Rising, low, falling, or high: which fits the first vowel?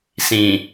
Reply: low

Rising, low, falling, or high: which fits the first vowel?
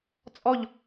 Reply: falling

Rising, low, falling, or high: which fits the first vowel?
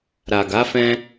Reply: low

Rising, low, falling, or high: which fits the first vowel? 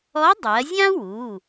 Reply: rising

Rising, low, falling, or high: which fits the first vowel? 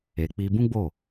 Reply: low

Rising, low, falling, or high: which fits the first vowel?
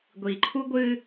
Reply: low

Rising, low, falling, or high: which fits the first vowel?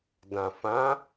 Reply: low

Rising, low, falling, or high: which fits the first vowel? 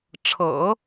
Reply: low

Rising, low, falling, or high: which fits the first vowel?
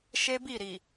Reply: high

